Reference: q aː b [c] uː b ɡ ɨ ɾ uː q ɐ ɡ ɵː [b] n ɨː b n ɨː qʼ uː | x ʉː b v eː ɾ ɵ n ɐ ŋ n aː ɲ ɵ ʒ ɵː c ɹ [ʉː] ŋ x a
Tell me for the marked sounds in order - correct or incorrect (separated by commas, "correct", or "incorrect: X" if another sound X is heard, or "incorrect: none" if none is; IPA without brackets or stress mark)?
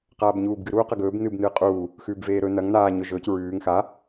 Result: incorrect: ɲ, correct, correct